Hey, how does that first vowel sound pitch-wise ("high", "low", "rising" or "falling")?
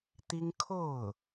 high